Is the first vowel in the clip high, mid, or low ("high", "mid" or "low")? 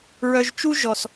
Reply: mid